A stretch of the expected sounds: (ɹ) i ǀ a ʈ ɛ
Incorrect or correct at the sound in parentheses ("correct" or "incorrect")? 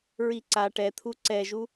correct